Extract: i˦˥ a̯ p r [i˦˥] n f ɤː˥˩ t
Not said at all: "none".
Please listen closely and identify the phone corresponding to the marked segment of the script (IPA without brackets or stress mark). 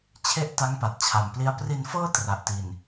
i˧